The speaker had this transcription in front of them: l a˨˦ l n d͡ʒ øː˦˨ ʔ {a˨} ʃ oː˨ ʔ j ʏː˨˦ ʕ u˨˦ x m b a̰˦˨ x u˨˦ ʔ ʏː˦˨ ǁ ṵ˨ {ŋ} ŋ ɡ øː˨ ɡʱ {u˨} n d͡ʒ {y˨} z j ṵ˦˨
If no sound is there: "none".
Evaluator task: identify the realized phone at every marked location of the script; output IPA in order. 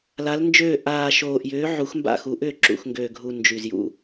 aː˨, x, u˨, y˨

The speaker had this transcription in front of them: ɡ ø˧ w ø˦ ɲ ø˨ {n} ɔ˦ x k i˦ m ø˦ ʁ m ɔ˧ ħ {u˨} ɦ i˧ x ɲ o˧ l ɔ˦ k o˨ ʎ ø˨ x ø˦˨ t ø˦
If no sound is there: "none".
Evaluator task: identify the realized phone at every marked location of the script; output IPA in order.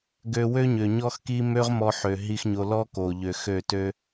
ɲ, ø˨

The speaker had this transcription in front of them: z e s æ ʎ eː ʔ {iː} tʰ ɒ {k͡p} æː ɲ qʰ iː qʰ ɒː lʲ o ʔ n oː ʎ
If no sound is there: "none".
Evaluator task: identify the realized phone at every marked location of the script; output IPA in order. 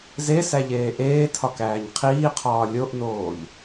eː, k

